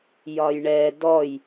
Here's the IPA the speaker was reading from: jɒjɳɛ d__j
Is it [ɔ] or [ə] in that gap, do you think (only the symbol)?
ɔ